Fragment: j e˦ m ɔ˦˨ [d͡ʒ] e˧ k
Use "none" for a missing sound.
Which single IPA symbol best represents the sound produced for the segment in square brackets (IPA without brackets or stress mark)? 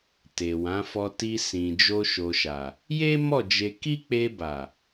d͡ʒ